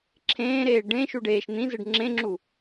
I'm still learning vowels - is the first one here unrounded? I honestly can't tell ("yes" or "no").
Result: yes